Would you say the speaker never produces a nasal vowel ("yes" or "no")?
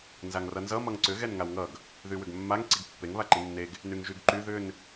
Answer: yes